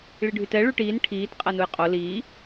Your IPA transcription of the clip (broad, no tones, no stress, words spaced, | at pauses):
ɭiɖʱytɛ ɭyʈiːn ʈʰiːt qʼænujqʼo liː